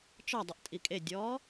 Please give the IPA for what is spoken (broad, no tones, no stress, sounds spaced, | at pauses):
t͡ʃ ɒ dˤ ə ʔ tʼ i kʼ e dʲ ɔː